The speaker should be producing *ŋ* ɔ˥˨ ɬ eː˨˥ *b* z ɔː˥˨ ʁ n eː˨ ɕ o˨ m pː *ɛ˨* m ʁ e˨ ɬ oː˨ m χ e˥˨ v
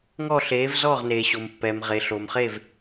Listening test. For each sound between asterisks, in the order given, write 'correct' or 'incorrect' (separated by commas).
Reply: correct, incorrect, correct